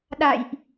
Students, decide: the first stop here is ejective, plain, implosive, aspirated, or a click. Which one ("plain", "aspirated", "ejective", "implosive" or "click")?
implosive